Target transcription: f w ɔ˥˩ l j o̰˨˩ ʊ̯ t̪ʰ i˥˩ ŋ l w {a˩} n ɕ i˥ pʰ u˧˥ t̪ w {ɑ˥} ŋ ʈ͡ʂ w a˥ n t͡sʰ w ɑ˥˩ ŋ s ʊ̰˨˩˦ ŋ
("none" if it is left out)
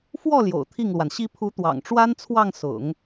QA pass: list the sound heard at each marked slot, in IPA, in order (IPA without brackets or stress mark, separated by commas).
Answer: a˩, ɑ̰˨˩